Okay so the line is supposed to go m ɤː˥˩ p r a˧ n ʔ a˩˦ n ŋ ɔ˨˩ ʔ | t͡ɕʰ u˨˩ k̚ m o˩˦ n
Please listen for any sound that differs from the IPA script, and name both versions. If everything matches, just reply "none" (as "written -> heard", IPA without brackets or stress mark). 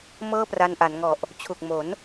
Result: none